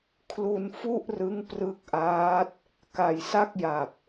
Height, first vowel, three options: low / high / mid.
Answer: high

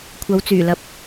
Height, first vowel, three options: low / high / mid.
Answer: low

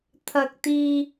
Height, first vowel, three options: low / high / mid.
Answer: low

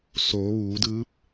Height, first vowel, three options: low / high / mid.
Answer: mid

